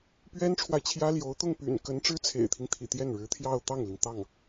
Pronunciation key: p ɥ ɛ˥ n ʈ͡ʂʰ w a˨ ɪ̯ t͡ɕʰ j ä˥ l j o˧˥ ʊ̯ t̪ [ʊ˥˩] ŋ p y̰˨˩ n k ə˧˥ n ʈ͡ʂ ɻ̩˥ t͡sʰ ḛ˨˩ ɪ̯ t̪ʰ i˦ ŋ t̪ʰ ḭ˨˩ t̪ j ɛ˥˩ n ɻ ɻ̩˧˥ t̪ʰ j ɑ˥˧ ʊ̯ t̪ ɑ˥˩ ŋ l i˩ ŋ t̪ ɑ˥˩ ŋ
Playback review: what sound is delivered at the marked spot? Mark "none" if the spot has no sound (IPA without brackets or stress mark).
ʊ˥˩